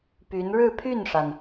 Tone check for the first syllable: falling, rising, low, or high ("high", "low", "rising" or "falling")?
rising